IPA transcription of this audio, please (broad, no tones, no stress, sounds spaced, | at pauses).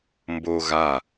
m b o ɣ a